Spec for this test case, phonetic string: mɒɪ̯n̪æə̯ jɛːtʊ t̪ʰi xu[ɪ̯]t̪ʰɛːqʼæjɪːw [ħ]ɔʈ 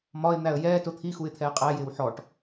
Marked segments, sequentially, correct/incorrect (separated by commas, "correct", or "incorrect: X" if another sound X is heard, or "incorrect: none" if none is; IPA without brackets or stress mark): correct, correct